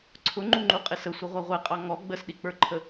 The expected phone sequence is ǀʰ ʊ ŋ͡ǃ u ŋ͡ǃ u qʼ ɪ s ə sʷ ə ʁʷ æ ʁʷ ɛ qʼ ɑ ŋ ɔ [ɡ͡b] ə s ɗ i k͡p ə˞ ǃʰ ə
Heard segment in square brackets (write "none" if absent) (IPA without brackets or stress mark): ɡ͡b